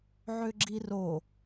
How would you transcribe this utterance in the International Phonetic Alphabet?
ʕ ʏ ɡ͡ǁ i r o

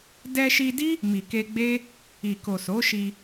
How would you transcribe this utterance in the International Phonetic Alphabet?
d ɛ˧ ʃ i˧ d i˦ | m i˨ k e˧ ɡ͡b e˦ | i˨ k o˨ s o˨˦ ʃ i˧

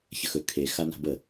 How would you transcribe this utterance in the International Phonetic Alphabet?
ç ə x ɵ kʰ e x a n a̤ b ə

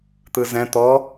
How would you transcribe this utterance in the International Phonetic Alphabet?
t̪ ɯ z ɛ̃ t̪ ɔ

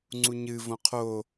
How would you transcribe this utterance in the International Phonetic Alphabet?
ŋ͡ǀ u ɲ ɨ v õ qʰ o

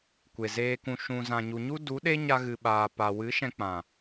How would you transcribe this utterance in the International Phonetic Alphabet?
kʷ e˨ z eː˧ k ũ˨ ʃ ũ˨ z ã˨ ɲ u˨ ɲ u˦ d u˨˦ ɗ e˦ ɲ a˧ ɣ ɨ˨ ɓ aː˨ p a˨ w ɨ˨˦ ʃ ɛ̃˧ k͡p ã˨

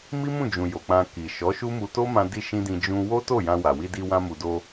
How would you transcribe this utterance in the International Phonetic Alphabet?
m i˦ m ũ˦˨ d͡ʒ ũ˨ j o˨ k͡p ã˧ k i˨ ʃ ɔ˨˦ ʃ u˦ m u˧ t o˦ m ã˧ d i˧ ʃ ĩ˦ d ĩ˧ d͡ʒ ũ˦ w o˦ t o˦˨ j ã˧ w a˨ w i˧ d i˧ w ã˧ m u˨ d o˧

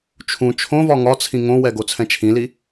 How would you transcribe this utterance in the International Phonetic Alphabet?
t͡ʃʰ ũ t͡ʃʰ õ v ɒ ŋ ɒ t͡sʰ ĩ ŋ õ w ɛ ɡ o t͡sʰ ɛ̃ t͡ʃʰ ĩ l i

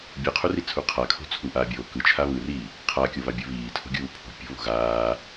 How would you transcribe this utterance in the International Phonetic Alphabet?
bʲ ɯ qʰ u r i t͡sʰ u qʰ a kʰ o̤ t͡sʰ u ʔ aː bʲ oː k ɯ t͡ʃʰ a β ɯ r iː | qʰ a kʲ o β a bʲ u β iː tʰ o̤ ɡʲ uː pʰ o̤ pʲ o̤ β o̤ ɣ aː

